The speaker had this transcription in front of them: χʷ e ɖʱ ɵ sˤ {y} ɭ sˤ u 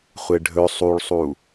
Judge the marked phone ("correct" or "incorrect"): incorrect